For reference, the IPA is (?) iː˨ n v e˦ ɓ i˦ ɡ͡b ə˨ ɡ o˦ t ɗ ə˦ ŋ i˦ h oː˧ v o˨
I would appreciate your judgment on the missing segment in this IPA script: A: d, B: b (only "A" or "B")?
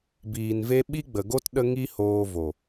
B